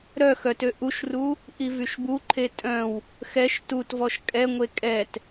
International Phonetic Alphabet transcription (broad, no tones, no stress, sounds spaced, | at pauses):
ɾ œ x œ t ø ʔ u ʃ r u | ʔ i v y ʃ b u ǃʰ e tʼ œ̃ w | x ɛ ʃ t u t v ɔ ʃ kʼ ɛ ŋʷ e kʼ ɛ t